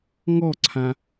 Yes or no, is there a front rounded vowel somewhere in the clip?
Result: no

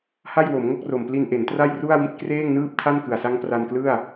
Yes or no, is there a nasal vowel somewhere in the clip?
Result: no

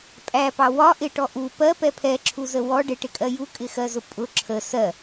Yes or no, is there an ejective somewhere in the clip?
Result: yes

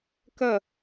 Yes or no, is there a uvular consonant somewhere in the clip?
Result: no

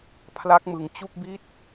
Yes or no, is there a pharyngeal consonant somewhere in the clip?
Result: no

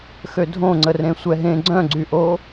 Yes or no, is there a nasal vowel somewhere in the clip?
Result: yes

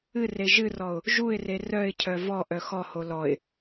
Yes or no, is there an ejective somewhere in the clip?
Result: no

